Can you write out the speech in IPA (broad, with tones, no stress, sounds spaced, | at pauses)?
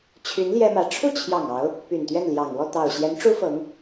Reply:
t͡ɕʰ y˧˥ n l j ɛ˥ m ä˧˥ ʈ͡ʂʰ u˥˩ t͡ɕʰ j ɑ˨˩ ŋ ɑ˧˥ ʊ̯ | p y˨˩ n t̪ ɥ ɛ˥˩ n l j ɑ˨˩ ŋ w ɔ˥˩ t̪ ɑ˨˩ ʊ̯ ɕ j ɛ˧˥ n ʈ͡ʂ u˥ f ɤ˧˥ ŋ